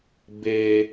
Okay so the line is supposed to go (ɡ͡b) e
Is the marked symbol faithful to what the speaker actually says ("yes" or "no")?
no